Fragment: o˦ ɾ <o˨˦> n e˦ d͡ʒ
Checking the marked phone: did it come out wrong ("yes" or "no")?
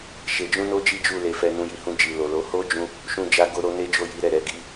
yes